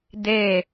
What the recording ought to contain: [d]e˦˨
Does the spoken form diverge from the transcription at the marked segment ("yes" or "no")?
no